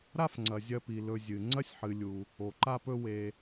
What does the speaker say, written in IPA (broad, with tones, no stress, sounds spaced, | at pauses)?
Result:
ɾ a˦ f ŋ͡ǀ ɐ˩ zʲ ɐ˨ p i˩ l ɵ˨ zʲ ɨ˩ ŋ͡ǀ ɐ˥ sʲ ħ ɨ˨ lʲ u˨ | o˩ ǃ a˦ p ɵ˦ w e˨